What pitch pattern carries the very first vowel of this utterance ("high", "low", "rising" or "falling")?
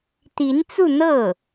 rising